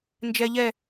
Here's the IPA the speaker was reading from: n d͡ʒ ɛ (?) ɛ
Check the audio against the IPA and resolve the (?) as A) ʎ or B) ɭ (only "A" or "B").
A